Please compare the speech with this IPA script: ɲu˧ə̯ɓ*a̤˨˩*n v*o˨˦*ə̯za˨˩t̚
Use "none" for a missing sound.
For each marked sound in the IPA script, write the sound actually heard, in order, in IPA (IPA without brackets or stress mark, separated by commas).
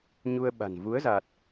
a̤˨˩, u˨˦